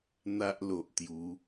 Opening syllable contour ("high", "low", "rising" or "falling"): high